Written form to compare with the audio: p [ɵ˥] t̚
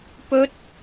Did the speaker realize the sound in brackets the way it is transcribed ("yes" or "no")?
yes